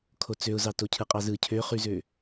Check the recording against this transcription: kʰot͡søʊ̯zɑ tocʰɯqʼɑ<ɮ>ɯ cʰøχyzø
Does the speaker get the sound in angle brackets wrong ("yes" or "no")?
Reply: yes